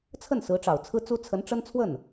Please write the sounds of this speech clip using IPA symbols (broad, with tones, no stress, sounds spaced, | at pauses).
t͡sʰ ə˥˩ n s ɹ̩˧˥ ʈ͡ʂ ɑ˨˩ ʊ̯ t͡sʰ ɹ̩˥ t͡s u˥ t͡sʰ ə˧˥ n ʈ͡ʂ ə˥ n t͡sʰ w ə˥˩ n